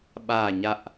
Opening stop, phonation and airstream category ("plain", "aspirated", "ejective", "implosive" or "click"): implosive